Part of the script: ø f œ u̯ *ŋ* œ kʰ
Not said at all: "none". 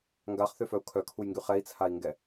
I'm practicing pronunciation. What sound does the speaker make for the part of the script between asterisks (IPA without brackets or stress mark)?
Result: kʰ